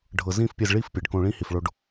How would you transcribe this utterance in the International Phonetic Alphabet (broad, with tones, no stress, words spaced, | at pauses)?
ɖʱɤ˨zĩ˦˨fpʲe˧z ɭi˦˨f pʲe˨ɖ kõ˧ɭĩ˦hi˨f ɭo˧ɖ